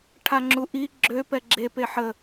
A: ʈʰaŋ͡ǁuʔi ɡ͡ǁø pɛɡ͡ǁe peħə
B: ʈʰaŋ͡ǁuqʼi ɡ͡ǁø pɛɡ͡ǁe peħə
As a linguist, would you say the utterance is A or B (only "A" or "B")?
A